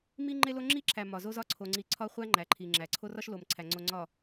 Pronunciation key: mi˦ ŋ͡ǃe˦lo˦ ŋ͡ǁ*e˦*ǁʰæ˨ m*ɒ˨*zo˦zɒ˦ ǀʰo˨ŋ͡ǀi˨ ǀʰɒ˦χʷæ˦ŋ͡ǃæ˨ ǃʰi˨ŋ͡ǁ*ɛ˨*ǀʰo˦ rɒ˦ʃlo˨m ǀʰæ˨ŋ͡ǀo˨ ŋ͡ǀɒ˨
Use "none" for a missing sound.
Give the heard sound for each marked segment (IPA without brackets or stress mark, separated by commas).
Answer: i˦, ɒ˨, æ˨